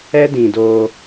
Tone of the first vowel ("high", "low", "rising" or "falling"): high